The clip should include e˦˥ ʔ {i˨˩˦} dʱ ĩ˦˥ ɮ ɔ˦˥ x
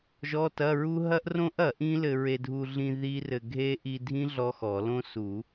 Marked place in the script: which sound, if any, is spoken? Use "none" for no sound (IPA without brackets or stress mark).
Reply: i˧